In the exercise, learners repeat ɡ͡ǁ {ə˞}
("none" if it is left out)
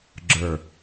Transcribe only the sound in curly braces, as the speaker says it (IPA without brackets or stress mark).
ə˞